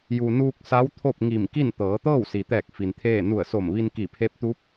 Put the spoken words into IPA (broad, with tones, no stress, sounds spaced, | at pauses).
j u˩ n uː˧ k̚ s a˧˥ w t̪ʰ o˥˨ p̚ ŋ i˧˩ m k i˥˨ n t̪ ɤː˩˧ t̪ ɤː˥˨ w s i˩ t̪ ɛː˧˩ k̚ f i˩ n t̪ʰ eː˥˨ n u˧˩ ə̯ s o˧˩ m ʋ i˧ n k i˧˩ pʰ e˧˥ p̚ t̪ u˧˥ p̚